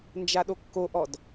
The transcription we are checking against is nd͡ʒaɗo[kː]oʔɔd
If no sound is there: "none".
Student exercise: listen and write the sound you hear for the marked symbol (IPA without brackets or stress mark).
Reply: kː